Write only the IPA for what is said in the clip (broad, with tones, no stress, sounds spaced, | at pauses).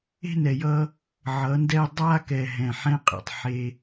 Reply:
e̤˦ n ɛ˨ j ʌ˦ | ʕ ʌ˨˦ n d ɛ˦ dˤ a˦ k ɛ˨ ɦ ɛ̃˨ ħ ɛ̃˦ qʼ ḛ˨ tˤ ħ e˦